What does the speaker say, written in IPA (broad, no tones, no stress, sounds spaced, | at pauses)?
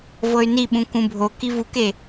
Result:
v ɤ y̯ n i ɓ ũ k ũ bʱ o k i v u k e